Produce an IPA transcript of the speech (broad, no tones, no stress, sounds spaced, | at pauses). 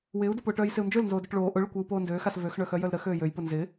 w ɪː u̯ d ʊ p ʊː ʈ œː j s ɪ u̯ n d͡ʒ ø l n z oː d o ʈ ɭ oː ʔ ʊ ɭ ʊ kʷ ɪː u̯ p oː n d øː x a s v ø x ɳ œ x œ j œ l ɾ ə x øː j ø j p ʊ n z ɪ